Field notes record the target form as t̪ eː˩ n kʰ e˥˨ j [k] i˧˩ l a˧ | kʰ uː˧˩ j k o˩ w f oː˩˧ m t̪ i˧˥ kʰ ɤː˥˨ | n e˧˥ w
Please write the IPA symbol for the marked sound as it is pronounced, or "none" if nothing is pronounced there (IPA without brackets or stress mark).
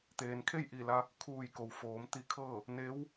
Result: ʔ